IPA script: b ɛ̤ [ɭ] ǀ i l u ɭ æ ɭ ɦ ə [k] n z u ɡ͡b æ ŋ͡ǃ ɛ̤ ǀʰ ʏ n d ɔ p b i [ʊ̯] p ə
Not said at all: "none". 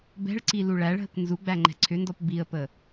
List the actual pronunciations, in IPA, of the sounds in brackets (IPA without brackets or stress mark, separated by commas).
ɭ, k, ə̯